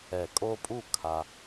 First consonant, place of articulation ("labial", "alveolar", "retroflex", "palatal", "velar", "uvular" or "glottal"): velar